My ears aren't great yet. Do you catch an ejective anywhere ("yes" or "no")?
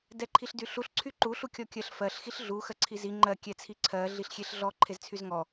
no